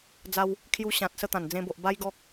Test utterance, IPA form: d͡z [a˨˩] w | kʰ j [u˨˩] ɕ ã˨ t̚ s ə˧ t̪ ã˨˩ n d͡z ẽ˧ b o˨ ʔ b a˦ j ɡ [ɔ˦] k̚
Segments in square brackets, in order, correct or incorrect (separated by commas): incorrect, incorrect, correct